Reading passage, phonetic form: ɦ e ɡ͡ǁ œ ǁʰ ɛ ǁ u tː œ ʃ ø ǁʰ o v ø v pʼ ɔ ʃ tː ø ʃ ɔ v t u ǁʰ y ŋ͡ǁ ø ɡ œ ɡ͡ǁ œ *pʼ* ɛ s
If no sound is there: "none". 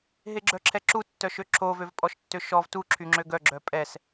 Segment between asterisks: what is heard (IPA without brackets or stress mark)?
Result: pʼ